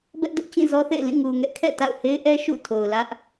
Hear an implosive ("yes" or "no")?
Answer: no